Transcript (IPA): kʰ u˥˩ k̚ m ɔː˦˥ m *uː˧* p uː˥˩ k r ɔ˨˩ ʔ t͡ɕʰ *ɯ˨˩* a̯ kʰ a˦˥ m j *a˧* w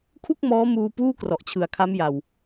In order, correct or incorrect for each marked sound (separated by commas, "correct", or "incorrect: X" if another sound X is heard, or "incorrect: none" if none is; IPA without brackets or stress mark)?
correct, correct, correct